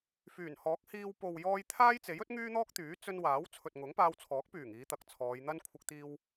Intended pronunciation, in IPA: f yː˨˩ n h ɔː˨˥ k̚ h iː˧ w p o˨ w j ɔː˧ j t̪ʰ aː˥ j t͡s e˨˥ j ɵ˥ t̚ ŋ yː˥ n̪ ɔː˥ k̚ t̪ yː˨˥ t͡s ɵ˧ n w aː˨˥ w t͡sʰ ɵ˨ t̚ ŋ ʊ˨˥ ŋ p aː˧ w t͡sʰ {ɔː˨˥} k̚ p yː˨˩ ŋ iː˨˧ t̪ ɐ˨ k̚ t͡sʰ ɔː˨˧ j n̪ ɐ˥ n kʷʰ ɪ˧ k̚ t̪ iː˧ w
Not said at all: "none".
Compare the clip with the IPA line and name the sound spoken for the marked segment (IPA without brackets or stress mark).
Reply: ɔː˨˥